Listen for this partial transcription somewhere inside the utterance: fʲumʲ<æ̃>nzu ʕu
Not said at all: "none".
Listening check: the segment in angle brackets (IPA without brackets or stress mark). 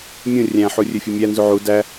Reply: æ